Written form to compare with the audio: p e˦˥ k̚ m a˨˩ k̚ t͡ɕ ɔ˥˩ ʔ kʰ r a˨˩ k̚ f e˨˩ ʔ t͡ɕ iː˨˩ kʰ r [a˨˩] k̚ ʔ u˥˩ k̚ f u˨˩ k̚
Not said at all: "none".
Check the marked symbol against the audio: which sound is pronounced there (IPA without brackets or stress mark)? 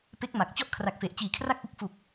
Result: a˥˩